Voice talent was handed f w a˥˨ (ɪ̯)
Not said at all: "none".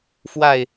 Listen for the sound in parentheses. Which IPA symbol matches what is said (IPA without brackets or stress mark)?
ɪ̯